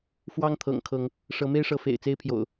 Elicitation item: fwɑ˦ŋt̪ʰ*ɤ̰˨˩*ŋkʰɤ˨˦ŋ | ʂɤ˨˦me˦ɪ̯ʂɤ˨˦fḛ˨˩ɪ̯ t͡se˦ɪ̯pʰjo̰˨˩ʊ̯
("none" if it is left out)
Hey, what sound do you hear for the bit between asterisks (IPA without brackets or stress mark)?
ɤ̰˨˩